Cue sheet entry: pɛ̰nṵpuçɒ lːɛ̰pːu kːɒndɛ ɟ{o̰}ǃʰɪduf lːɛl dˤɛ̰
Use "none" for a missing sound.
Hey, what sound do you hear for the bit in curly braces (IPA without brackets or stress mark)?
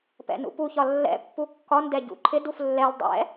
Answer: ṵ